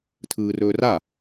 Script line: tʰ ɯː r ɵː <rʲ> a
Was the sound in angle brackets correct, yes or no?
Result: no